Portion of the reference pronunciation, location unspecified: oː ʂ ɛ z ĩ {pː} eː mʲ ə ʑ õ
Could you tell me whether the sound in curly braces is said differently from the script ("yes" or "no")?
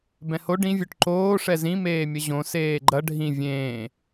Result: yes